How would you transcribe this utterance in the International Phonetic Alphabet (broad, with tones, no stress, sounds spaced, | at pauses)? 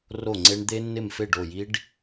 r o˥˩ ŋ͡ǀ e˦˥ ɳ d̪ e˦˥ nː ɪ˥˩ m f e˥˩ ɖ o˥˩ j i˦˥ ɖ